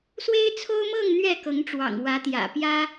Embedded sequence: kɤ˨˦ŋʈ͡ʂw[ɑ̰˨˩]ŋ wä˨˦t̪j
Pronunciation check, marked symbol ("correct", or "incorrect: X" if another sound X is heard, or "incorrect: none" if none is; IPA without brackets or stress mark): correct